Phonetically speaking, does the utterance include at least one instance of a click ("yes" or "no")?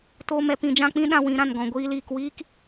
no